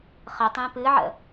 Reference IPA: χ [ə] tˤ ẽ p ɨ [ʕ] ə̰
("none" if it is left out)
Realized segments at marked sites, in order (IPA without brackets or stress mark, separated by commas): ə, ʕ